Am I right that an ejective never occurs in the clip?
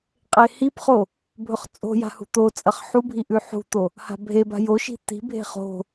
no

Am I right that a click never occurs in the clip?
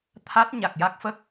yes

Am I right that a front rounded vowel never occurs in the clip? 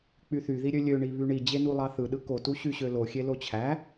no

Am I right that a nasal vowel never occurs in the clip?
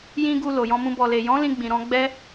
no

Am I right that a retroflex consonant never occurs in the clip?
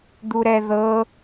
yes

